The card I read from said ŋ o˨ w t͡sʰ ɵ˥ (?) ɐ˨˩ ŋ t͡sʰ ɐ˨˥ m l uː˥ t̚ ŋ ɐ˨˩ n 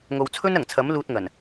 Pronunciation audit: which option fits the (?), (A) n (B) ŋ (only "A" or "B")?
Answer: A